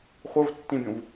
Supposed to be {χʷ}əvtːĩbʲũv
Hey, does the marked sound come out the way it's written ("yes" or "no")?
yes